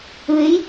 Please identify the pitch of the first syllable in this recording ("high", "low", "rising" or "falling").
rising